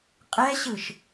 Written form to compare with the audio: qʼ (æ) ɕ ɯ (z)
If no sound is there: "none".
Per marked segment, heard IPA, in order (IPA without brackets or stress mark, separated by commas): ɛ, ʃ